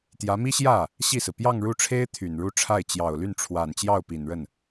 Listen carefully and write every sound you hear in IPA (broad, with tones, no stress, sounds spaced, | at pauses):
t̪ j ä˧˥ m i˥ ɕ j ä˥˩ | ɕ i˥˩ s ɹ̩˩ p j ɑ˥˧ ŋ ɻ u˥˩ ʈ͡ʂʰ e˥ ɪ̯ t̪ʰ y˨˩ n ɻ u˥˧ ʈ͡ʂʰ a˥˩ ɪ̯ t͡ɕ j ɑ˨˩ ʊ̯ l y˥˩ n ʈ͡ʂʰ w a˨˩ n t͡ɕ j ɑ˥˩ ʊ̯ p i˨˩ n ɻ ə˥˩ n